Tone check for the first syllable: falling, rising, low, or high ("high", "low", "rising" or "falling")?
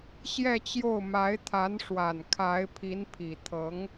falling